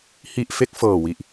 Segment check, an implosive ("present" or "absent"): absent